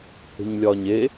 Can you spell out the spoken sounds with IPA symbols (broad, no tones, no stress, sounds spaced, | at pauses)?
h e̤ ɲ lʲ ɒː ɲ e